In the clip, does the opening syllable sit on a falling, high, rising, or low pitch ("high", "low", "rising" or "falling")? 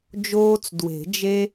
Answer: high